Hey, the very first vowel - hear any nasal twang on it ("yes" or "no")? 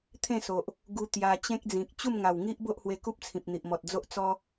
yes